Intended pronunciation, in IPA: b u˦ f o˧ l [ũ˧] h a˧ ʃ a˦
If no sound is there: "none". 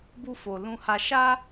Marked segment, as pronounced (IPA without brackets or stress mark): ũ˧